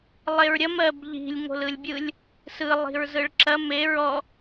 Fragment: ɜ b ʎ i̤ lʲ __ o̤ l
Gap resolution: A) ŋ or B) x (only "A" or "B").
A